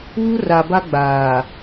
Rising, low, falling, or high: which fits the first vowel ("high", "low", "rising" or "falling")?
high